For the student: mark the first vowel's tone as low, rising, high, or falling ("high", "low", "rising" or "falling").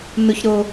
high